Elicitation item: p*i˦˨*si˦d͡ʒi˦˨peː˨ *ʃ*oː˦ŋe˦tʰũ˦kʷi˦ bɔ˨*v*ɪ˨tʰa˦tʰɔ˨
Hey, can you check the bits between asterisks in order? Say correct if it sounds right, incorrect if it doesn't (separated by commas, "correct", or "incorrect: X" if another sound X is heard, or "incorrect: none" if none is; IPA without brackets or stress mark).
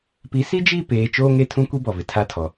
incorrect: i˨˦, incorrect: t͡ʃ, correct